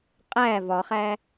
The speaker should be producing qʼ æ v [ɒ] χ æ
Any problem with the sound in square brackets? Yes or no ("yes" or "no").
no